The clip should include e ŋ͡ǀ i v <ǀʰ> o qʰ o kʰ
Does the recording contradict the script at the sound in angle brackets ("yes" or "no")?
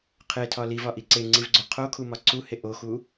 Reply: yes